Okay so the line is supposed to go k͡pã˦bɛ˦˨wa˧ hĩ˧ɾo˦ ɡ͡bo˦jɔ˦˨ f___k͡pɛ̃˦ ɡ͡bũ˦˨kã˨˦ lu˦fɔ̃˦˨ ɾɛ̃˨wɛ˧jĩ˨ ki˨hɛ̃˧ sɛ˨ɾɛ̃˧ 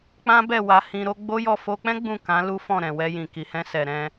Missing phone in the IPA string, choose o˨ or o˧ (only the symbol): o˧